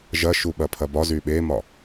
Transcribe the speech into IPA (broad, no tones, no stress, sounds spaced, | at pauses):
ʒ ɐ ʃ u ɓ ɐ pʰ ɐ b ɒ z y ɓ e m ɒ